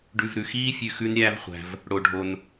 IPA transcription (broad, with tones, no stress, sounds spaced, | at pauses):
ɖ ʉ˨ v ɾ ʉ˩ x iː˥ fʲ ʉ˨ x ʉ˦ n ɾʲ æ˦ v χʷ æ̤˨ v | ɽ o˩ ɖʱ o˩ n